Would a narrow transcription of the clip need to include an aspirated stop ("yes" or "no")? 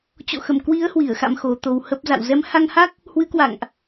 no